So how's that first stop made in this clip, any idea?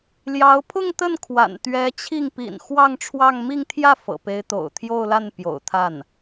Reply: aspirated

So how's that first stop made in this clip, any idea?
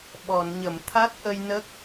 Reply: implosive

